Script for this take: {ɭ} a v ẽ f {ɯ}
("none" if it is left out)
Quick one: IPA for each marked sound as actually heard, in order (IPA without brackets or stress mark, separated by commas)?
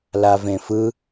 l, ɯ